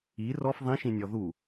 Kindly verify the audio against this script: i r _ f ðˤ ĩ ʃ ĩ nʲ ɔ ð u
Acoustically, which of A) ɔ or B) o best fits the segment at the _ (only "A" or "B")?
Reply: A